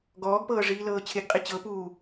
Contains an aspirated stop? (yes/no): yes